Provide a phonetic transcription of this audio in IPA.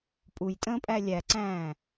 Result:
pʼ u j tʼ ə̃ː pʼ æ lʲ æ ǀ æ̃ː

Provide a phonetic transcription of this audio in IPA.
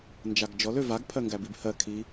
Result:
n d͡ʒ a ɡ d͡ʒ ɔ l ø v a ɡ pʰ ɜ ŋ ɡ æ b i b h ɜ kʰ i

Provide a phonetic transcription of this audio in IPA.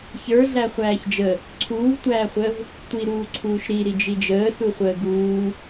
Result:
ç ə˞ ɮ æ χʷ æː ç d͡ʒ ə | ǀʰ uː v tʷ æː χʷ əː v | tʷ i ɾ uː ǀʰ uː ʃ ɾ i ɾ i d͡ʒ i d͡ʒ əː s u χʷ əː ɡ uː

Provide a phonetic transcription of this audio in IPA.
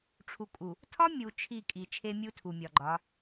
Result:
ʈ͡ʂʰ u˨ kʼ u˨ | tʰ ɒ˦ mʲ u˨ t͡ʃʰ i˦˨ kʼ i˨ t͡ʃʰ e˦ mʲ u˦ tʰ u˨ mʲ ɒ˨ ɡ͡ǃ ɒ˨˦

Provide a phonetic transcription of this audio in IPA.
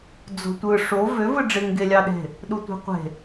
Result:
d͡z o̤ tʷ ɯ ʂ o v ø v ɯ ɖ͡ʐ e ŋ ɡ e lʲ ɑ ɗ e̤ | ɗ u tʷ e̤ qʷ e̤

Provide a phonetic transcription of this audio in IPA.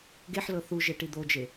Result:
ɡ e ħ l ɤ θ u ʒ e ʈ i d̪ o d͡ʒ e

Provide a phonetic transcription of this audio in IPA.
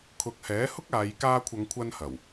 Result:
kʰ ʊ˨ k̚ h ɛː˨˥ h ʊ˥ k̚ aː˨˧ j k aː˧ kʷʰ ɐ˨˧ ŋ kʷʰ ɐ˧ n h ɐ˨˩ w

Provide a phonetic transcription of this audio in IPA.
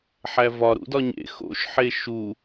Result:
ħ æ v ɒ ɾ ṵ d ɒ ɲ ḛ x o̰ ʃ ħ e ʃ u

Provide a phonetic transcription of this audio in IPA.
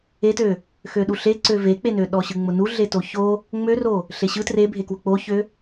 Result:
e t ø | x ø ɗ u ɬ e ǀ ø v e k͡p e n ø ɗ ɔ ɕ ɯ ŋ͡m ʊ n u ɮ e t o ç o | ŋ͡m ø r o | ɬ e ɕ ɯ t r e bʱ e k w ʊ k͡p o ç ø

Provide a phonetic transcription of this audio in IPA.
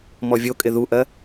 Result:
m ɔ vʲ o kʼ ɪ ð u ʔ ɜ

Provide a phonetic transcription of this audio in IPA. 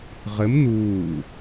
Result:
ʁ ɘ m n̪ uː

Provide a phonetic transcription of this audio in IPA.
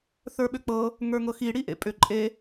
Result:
θ ə˞ ɓ ʏ k͡p ɤ | ŋ ə˞ ŋ ɤ x i ɽ i ʔ ḛ pʼ ʏ ǃʼ e

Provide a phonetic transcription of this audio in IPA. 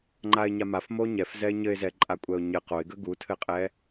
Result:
ŋ͡ǃ a ɪ̯ ɲ a m a f m o ɲ ɛ f z ɛ ɪ̯ ɲ ɘ ɪ̯ z ɛ ǃʼ a kʷʼ ɛ ʊ̯ ɲ ɘ q o ɪ̯ ɡ ə ɡ u tʰ ɘ qʼ ɛ

